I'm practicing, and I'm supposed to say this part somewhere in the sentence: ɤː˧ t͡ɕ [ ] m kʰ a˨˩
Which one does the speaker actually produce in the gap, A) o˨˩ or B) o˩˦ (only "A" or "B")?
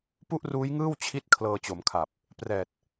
B